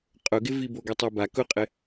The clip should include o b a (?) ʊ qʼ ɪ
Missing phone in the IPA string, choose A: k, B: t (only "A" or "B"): A